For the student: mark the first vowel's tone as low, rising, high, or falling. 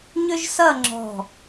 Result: high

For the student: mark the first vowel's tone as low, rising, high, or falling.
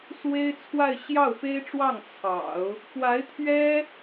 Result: high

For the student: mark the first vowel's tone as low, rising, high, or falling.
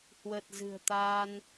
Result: low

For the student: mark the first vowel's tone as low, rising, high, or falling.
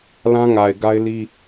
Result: high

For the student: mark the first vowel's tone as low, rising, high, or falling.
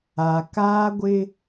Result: low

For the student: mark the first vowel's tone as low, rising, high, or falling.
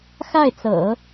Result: falling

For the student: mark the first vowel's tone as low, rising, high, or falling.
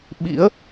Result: rising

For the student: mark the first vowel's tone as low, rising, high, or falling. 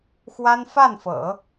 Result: high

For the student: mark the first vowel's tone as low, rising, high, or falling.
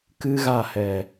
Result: high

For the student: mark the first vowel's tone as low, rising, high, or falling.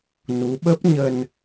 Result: rising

